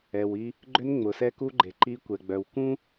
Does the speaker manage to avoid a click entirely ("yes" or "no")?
no